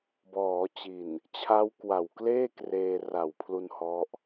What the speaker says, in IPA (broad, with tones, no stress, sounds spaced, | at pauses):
b ɔː˩˦ t͡ɕ i˨˩ n | t͡ɕʰ a˦˥ w k w a˨˩ w k l eː˥˩ k r eː˧ r a˨˩ w pʰ l u˧ n h ɔ˦˥ ʔ